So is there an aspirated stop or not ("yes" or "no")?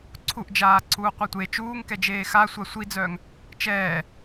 yes